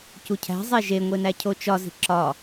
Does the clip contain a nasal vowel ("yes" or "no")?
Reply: no